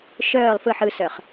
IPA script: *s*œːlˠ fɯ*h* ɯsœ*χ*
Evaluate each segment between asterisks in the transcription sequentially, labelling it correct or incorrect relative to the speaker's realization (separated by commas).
incorrect, incorrect, correct